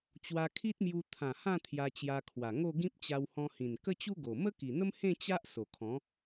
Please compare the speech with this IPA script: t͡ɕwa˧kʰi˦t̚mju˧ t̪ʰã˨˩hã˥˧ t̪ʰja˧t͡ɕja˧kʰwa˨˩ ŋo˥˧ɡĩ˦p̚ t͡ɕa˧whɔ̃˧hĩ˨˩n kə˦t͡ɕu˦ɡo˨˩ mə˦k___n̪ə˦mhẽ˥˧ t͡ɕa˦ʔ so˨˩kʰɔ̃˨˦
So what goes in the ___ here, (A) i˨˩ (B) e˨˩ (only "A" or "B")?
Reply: A